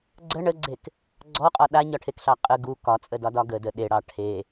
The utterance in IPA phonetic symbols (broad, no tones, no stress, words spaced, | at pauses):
ɡ͡ǀə ɳəɡ͡ǀek | ɡ͡ǀɔqʼɒ ɗaɲɒʈʰekɬɑ qʼə ɡu kɒt͡sʼədɒdɒ ɡədə ɗeɽɑ ʈʰe